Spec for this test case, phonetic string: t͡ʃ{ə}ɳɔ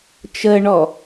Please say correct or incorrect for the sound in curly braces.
correct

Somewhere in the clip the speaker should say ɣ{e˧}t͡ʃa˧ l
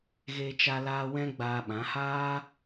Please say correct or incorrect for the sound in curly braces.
correct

